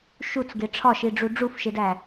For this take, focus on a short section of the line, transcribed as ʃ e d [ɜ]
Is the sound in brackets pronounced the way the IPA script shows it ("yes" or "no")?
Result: no